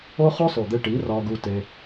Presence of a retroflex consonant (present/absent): present